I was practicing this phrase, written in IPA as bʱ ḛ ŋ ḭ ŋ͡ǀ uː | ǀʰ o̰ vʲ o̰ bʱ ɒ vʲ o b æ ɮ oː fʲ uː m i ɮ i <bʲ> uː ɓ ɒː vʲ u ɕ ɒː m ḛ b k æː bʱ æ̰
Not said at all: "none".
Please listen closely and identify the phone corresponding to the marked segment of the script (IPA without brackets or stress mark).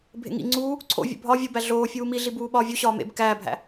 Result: b